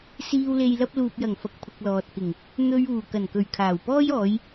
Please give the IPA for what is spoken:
s iː˧ w l e˧ j l ɐ˧ p̚ l uː˨ p̚ j ɐ˨˩ ŋ f ɐ˨ k̚ pʰ ʊ˨ k̚ l ɔː˨ t̚ k ɪ˨˩ ŋ | n̪ ɵ˨ ɥ uː˨˩ k ɐ˨˩ n k ɵ˨˩ ɥ kʰ aː˨˩ w p ɔː˥ j ɔː˨˧ j

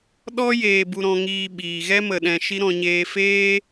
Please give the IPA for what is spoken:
ɗ ɔ˦ j eː˧ b u˧ ɾ ɔ̃˧ ŋ iː˧ ɓ iː˨ ɣ ɛ˦ m ə˨ ɗ ɛ̃˨ ʃ i˦ ɾ ɔ̃˧ ɲ eː˧ f eː˦

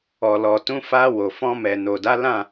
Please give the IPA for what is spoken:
ɔ˨ l ɔ˨ t ũ˨˦ f a˧ w o˨ f ɔ̃˧ m ɛ˨ n o˨ d a˨˦ l ã˦˨

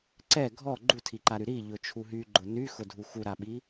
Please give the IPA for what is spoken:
ǀ ɛ ɡʱ ɔ ɡ͡ǃ u tʰ i ǃ a ɾ y ɾ i ʎ ʊ t͡ʃʰ u ɦ y ɡ͡ǃ ʊ n y x ʊ dʱ u x u ɾ a ɓ i

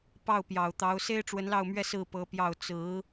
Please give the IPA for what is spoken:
p ɑ˥˩ ʊ̯ p j ɑ˨˩ ʊ̯ t̪ ɑ˧˥ ʊ̯ s e˥ ɪ̯ ʈ͡ʂ w ə˧˥ n l ɑ˥˧ ʊ̯ m ɥ ɛ˥˧ s ɹ̩˥˩ p ɤ˧˥ p j ɑ˥˩ ʊ̯ t͡s ɹ̩˧˥

